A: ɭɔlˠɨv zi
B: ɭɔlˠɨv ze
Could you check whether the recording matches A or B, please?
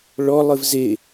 B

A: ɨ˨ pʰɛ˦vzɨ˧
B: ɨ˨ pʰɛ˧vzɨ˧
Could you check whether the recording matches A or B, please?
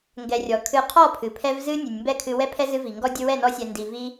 B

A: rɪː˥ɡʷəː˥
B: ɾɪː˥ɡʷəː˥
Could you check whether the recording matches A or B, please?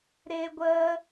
B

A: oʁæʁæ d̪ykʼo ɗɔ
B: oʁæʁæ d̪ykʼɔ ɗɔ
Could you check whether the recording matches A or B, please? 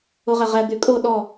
A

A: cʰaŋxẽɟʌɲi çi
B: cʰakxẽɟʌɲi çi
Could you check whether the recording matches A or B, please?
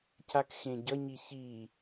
B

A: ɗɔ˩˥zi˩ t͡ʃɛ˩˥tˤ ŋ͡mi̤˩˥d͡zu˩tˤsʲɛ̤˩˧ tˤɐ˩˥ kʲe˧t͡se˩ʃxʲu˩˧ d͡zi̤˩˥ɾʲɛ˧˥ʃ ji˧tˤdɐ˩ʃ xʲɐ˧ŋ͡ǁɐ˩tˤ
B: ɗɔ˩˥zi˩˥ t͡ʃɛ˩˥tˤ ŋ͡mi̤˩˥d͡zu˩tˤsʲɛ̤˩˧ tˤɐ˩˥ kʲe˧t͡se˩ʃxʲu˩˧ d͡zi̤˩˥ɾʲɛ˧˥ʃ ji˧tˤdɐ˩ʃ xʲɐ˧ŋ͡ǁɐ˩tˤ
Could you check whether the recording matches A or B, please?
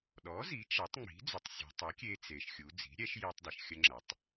B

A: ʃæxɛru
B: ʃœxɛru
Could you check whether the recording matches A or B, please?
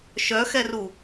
B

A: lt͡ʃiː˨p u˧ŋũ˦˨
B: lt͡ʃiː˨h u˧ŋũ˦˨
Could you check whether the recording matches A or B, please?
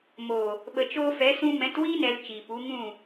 A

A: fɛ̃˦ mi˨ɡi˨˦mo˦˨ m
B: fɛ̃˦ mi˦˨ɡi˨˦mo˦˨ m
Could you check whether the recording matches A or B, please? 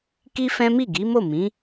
B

